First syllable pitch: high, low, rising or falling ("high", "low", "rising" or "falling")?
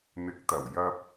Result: rising